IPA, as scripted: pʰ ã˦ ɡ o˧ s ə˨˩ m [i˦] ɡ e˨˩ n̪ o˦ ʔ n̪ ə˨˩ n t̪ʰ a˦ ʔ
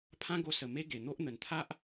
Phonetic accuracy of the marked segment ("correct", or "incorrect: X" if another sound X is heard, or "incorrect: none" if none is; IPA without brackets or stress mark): incorrect: e˦